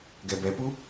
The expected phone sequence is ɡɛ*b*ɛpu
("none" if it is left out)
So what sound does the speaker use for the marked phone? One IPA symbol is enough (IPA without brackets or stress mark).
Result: b